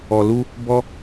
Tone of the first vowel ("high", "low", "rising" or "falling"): low